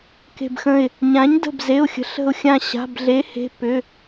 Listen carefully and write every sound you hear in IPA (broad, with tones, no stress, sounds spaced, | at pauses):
k e̤˧˩ b x ə̃˧˩ ɪ̯ | ɲ ã˩˥ ɲ d ə̤˧˩ b z e˩˧˩ ʊ̯ xʲ ə̤˩˥ ɬ ə̤˧˩ ʊ̯ xʲ ã˧˩ ɕ a̤˩˧˩ b ɮ e˩˥ h e̤˩˧˩ p ʏ˩˧˩